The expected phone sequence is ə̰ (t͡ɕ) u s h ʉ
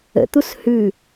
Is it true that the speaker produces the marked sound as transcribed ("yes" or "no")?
no